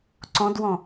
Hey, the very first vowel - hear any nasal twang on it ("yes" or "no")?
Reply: yes